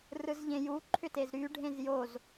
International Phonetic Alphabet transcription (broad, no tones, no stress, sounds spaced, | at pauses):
r ɯ z ʎ ẽ j u ǃʰ ʏ t e z ɾ y ɖʱ ẽ z j o z